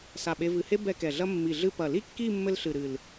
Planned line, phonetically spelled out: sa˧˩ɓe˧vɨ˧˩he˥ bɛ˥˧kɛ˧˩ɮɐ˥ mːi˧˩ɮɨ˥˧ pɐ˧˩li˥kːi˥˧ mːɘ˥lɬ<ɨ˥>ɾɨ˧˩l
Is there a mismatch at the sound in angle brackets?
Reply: yes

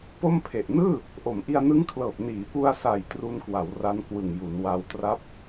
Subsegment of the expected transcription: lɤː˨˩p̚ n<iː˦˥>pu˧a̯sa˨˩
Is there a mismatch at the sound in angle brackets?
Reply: yes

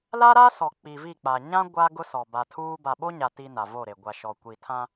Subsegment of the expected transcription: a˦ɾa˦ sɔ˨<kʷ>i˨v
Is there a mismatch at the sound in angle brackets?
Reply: yes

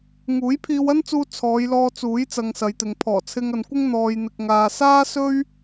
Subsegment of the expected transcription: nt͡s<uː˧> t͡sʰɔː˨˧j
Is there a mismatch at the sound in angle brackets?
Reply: no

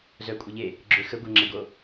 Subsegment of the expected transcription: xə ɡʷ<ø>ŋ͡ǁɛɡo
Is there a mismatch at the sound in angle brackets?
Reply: yes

